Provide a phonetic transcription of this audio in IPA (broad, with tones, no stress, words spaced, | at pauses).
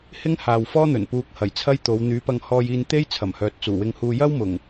hɪ˥ŋhaː˨wfɔː˥n̪ɵ˨˩n puː˧k̚hɐ˨˩jt͡sʰɐ˥jt̪o˨˧w n̪yː˨˧pɐ˧ŋhɔː˧j iː˧nt̪e˥jt͡sʰɐ˨˩mhœː˨t̚ t͡suː˨˩wɪ˧ŋhuː˧ jɐ˥wmʊ˨˩ŋ